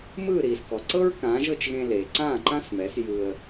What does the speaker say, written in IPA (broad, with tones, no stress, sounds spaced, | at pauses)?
m ɯː˥˩ ɾ iː˩ s k ɔ˩ ǀ ɤ˥ ɹ k ãː˩˥ ʒ ɤ˥˩ t͡ʃ ɣ ẽ˧ l eː˩ ǀ ãː˥˩ ǃ ã˥ s m ɛ˩˥ s j ɯ˧ ə̯